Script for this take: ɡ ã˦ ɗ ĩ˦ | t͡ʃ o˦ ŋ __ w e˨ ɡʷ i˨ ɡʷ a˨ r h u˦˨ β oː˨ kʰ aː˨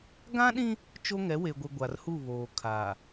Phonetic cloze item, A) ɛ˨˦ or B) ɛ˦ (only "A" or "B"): A